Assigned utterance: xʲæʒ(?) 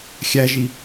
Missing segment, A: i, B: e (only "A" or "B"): A